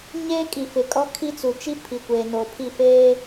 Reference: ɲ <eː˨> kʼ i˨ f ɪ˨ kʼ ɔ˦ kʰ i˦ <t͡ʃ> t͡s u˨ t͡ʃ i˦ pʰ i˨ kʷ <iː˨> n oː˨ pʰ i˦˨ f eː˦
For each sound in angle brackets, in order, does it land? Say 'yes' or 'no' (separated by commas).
no, no, no